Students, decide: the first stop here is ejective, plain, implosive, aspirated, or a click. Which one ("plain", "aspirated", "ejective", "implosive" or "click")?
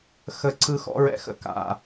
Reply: click